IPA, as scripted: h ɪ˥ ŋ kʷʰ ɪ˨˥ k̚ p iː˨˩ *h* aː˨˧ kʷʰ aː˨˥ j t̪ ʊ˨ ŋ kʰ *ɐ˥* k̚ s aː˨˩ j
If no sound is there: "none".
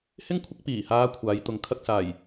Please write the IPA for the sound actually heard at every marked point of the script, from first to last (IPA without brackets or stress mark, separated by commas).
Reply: h, ɐ˥